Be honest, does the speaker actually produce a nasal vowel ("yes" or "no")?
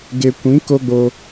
yes